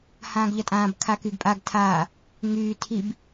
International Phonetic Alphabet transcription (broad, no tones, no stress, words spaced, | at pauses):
hãːɡʎʌtʼãːb kʰakyɡpʼaɡ tʰaː | ŋyː tʰib